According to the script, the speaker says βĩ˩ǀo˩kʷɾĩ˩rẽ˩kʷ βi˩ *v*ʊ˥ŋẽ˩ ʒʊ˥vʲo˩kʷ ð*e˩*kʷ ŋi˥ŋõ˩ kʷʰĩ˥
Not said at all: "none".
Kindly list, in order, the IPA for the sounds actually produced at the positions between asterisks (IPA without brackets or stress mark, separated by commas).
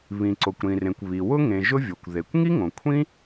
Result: w, e˩